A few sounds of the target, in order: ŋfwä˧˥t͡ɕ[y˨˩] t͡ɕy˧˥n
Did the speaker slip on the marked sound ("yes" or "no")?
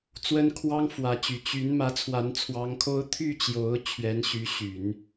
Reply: no